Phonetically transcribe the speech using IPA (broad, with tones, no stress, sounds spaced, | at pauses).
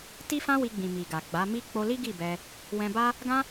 t i˦ f ã˦ w i˧ ɡ͡b ĩ˨ m i˨ ɡ a˨ ɡ͡b a˨˦ m i˦ k͡p o˧ l i˦ ɡ i˦˨ b ɛ˧ | w ɛ̃˧ b a˦ | ɡ ã˦